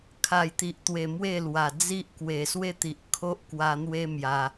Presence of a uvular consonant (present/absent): absent